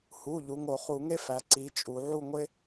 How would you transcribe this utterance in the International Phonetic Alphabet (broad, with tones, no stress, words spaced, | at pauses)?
hu˩˧˩ ʎu˩˧ŋo˧˩˧ χu˧˩˧ŋe˥fæ˩˧ ǀi˩˧ t͡ʃʼu˩˧ ʕu˥˨ŋʷe˥